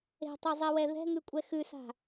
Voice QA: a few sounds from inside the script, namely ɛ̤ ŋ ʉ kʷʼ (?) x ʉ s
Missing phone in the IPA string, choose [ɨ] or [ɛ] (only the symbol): ɛ